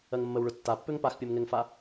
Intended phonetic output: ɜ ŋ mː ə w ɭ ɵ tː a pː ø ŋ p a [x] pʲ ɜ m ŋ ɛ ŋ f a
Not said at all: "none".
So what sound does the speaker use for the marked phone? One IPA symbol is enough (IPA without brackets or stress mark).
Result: x